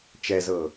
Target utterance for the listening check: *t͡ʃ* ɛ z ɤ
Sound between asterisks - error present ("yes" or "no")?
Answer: no